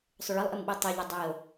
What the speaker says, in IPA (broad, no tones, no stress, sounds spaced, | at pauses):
sˤ ʊ ɭ ɘ lˠ ʔ ɘ m ɓ i tˤ o ʎ ɘ dˤ i o̯